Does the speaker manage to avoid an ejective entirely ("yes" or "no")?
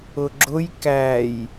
yes